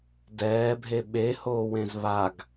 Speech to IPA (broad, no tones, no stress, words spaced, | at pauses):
dɛːbʱe ɓehoːwẽz βaɡ